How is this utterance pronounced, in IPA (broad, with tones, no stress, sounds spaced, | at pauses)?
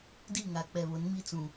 d i˦˨ ŋ a˨ k͡p ɛ˨ β ʊ˨˦ n m i˦ t͡s ũ˨